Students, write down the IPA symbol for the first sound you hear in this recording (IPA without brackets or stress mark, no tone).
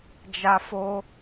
d͡ʒ